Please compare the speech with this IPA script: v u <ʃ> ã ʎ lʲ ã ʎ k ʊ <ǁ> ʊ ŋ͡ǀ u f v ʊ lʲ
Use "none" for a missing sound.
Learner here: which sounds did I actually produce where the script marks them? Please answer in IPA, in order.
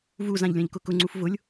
z, k

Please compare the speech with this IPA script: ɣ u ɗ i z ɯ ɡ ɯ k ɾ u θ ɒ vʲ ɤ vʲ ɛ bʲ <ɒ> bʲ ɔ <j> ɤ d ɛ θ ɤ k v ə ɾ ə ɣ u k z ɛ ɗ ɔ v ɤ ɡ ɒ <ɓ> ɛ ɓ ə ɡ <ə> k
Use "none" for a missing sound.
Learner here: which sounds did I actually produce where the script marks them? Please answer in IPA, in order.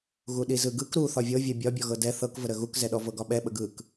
ɒ, ɣ, ɓ, ɯ

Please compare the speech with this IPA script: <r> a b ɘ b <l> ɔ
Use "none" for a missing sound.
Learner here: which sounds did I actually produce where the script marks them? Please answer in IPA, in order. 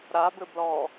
ɾ, l

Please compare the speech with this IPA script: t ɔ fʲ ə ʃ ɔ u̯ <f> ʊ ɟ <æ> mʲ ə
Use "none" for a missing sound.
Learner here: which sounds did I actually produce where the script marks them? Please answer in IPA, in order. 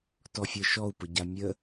p, a

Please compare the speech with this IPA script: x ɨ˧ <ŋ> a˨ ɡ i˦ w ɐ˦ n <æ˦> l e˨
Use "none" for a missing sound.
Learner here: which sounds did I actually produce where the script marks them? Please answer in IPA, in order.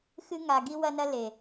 ŋ, ɐ˦

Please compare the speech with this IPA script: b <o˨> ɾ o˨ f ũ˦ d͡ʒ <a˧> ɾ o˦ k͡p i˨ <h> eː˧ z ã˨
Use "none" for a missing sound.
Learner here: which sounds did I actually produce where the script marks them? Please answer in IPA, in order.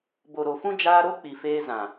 o˨, aː˧, f

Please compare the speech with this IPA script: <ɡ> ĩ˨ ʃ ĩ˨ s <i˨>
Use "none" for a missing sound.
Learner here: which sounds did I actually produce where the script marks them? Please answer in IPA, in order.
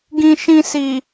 ɡ, i˨

